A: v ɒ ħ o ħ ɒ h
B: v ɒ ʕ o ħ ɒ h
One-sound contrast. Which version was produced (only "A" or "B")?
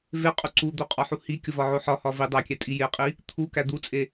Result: B